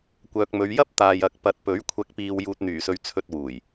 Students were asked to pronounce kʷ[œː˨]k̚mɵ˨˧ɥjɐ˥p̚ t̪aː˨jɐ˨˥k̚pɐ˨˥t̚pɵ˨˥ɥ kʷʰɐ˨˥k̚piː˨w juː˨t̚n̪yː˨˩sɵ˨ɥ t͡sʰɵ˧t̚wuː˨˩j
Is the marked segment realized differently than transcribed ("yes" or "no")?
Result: no